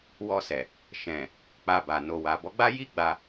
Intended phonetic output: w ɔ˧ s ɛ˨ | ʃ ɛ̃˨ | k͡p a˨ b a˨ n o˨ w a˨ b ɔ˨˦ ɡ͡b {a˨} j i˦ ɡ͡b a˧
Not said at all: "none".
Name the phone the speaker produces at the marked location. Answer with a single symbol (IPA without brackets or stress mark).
a˦